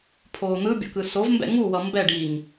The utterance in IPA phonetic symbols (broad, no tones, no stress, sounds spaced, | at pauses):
pʰ oː n̪ ɯ bʲ o̰ k ɯ s o v m b ɛ̰ ŋ u w ʌ m b ɛ ɖ iː ŋ